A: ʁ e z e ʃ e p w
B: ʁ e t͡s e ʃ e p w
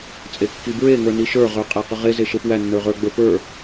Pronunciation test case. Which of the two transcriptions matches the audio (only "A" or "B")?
A